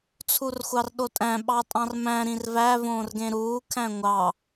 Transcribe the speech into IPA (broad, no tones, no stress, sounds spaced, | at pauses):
t͡sʰ u r xʷ ɑ r ɗ o tʼ æ̃ ɓ ɑ tʼ ɑ̃ r m æ̃ ɾ ĩ r v æ v õː r ɡ ẽ ɾ uː kʰ æ̃ ŋʷ ɑ